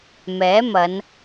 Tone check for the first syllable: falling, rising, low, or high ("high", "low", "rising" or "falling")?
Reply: rising